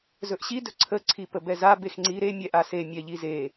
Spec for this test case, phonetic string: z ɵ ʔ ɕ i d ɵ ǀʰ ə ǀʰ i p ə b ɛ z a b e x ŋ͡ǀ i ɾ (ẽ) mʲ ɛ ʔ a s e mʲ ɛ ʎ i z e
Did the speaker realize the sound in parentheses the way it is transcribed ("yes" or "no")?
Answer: no